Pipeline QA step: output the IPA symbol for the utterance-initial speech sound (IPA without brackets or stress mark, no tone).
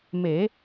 m